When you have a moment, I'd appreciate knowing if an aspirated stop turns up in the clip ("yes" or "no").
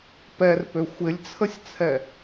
yes